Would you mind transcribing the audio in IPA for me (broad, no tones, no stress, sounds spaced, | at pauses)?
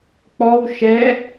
k͡p ɔ w ʃ ɛ